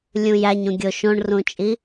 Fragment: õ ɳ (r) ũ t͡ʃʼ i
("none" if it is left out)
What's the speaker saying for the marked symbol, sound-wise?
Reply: r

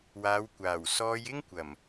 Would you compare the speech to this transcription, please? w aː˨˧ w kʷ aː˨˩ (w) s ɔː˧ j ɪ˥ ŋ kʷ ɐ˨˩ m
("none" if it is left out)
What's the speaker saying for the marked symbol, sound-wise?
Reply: w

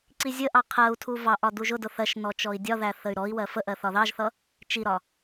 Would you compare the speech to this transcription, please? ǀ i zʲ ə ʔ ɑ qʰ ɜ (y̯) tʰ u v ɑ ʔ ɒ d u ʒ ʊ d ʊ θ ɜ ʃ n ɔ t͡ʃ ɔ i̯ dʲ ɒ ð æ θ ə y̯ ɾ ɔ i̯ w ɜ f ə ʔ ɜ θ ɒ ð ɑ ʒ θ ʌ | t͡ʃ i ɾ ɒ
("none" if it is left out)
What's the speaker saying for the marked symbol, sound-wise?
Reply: u̯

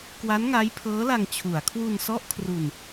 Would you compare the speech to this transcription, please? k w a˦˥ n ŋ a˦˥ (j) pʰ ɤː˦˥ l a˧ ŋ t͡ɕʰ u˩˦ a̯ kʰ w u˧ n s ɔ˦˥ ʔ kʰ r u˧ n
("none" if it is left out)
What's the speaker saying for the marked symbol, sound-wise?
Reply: j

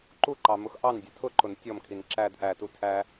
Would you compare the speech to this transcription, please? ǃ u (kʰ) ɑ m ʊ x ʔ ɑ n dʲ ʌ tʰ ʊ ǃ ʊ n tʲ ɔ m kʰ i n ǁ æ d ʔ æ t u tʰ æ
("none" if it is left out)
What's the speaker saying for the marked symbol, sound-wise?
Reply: ǃ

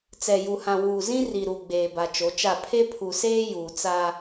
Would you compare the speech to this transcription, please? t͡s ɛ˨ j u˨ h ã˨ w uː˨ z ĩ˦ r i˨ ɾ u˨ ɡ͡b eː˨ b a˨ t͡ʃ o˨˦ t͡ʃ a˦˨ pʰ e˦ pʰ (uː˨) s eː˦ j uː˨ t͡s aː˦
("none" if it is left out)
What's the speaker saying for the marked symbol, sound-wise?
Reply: u˨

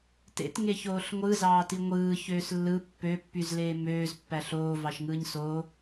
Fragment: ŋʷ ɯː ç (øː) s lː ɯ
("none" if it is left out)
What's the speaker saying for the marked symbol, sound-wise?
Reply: øː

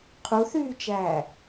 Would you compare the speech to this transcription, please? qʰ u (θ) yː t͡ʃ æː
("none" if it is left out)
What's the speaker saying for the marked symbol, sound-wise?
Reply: θ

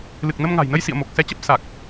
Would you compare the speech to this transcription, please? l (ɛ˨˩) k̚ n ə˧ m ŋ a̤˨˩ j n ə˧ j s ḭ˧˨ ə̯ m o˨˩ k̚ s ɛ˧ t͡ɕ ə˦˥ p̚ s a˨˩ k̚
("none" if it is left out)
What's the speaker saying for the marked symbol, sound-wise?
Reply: ɨ˨˩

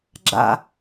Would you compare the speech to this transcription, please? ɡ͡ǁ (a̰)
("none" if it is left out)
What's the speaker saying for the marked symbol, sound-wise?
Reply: a̰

